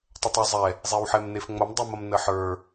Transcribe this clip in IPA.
tˤ ɐ tˤ ə˞ zˤ ɛ | zˤ e w ħ ɛ m n e f ŋ͡m ɐ m dˤ ɛ m ɐ m n ə ħ ə˞

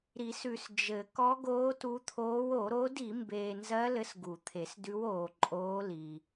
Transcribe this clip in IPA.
ɾ i˨˩˦ s ʉ˨ s d͡ʒ ɘ˨˩˦ k ɔ˧˥ ɡ oː˧˥ t u˧˥ t̪ʰ oː˧˥ w o˨˩˦ ɾ o˧˥ d i˨˩˦ m b eː˨ n z ɜ˧˥ l ɘ˧˥ s ɡ u˨˩˦ t̪ʰ e˨˩˦ s d ʉ˧˥ w oː˨ ǃʼ oː˧˥ l i˨

